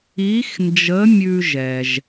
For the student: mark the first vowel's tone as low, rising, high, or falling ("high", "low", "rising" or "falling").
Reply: rising